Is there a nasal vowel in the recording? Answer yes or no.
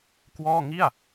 no